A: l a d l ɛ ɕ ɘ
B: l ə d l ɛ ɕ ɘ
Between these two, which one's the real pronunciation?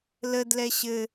B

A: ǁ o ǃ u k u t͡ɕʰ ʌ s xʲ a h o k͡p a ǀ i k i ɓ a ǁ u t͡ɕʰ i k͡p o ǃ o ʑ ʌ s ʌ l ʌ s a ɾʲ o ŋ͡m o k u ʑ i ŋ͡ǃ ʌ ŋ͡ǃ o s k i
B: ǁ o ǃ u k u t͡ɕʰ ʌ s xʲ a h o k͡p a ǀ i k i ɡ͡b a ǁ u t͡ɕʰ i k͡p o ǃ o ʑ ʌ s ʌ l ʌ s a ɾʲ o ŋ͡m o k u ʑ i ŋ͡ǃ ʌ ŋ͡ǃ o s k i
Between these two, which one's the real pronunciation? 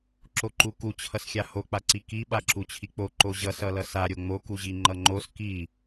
A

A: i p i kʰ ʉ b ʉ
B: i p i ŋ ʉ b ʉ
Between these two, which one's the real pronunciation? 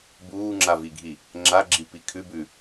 A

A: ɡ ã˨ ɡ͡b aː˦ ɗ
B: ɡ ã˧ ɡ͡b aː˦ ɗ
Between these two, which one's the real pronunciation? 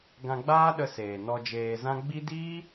B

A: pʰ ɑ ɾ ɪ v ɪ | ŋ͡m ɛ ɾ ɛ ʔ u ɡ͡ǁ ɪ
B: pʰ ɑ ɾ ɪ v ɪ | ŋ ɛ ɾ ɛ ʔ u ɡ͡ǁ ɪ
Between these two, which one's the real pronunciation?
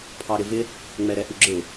A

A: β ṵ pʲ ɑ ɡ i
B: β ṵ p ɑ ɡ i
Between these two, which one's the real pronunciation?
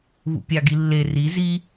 A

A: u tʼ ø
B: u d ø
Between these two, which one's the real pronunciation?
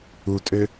A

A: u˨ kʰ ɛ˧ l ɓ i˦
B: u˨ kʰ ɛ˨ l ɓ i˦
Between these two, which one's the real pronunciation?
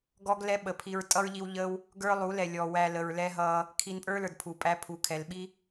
B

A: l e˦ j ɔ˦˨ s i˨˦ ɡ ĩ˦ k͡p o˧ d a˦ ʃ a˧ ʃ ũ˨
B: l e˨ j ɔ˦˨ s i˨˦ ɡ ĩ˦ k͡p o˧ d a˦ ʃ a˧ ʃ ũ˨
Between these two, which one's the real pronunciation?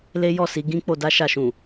A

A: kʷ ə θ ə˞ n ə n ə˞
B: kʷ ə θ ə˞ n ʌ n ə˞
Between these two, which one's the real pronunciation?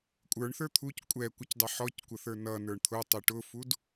B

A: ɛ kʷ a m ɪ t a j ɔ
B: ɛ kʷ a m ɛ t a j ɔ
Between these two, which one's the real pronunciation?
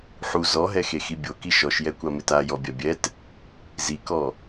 A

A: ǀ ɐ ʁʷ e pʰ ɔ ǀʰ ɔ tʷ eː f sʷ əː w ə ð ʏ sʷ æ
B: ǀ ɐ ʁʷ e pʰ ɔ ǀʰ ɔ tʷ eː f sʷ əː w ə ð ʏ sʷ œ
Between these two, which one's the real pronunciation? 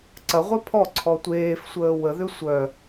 B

